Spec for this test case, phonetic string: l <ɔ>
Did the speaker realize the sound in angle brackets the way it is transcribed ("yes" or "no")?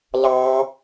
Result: no